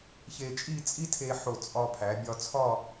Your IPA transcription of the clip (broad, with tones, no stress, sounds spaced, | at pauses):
ç e˧ t͡ʃʼ i˥˧ t͡sʼ i˥ tʰ e˧ ħ o˧˩ t͡sʼ ɒ˧ pʰ æ˩˧ bʲ ɒ˧ t͡sʰ ɒ˥˧